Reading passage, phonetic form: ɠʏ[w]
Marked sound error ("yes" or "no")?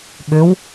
no